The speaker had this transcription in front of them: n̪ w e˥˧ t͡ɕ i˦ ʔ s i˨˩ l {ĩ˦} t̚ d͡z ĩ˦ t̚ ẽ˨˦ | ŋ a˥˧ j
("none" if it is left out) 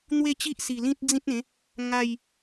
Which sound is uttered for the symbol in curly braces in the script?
ĩ˦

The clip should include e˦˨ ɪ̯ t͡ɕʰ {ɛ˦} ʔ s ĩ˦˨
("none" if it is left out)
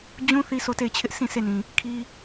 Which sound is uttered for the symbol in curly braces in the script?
ɪ˦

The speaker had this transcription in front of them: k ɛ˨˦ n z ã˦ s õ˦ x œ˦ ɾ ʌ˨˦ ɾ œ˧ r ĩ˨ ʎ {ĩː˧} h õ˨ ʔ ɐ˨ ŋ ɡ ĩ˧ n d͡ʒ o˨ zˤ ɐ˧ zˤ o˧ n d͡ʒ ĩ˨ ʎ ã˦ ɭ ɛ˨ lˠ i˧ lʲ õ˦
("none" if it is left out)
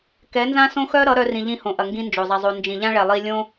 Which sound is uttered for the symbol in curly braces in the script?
ĩ˧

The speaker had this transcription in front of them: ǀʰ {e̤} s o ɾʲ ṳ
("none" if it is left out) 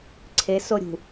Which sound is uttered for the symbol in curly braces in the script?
e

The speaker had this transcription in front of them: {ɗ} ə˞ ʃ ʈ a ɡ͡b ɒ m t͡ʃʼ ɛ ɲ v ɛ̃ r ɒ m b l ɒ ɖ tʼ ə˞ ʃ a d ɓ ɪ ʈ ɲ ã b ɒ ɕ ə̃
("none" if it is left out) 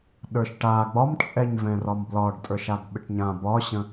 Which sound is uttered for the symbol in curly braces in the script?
ɗ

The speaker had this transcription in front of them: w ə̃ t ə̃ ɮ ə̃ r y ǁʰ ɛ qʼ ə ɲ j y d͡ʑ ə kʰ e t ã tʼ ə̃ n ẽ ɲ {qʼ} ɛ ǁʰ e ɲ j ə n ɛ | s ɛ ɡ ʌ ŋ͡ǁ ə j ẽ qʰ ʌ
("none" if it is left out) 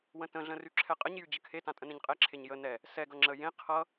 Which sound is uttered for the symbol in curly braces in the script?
qʼ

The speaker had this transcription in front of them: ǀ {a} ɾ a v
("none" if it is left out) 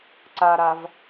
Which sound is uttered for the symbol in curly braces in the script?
a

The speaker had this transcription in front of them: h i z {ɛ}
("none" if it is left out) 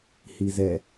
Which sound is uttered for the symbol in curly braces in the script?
ɛ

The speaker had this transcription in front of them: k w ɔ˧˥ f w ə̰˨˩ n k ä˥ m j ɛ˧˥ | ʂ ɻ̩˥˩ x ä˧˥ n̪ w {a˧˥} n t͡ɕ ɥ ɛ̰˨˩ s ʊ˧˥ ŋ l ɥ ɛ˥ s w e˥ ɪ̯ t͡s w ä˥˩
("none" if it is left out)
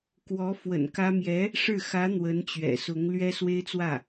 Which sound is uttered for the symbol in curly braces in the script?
ə˧˥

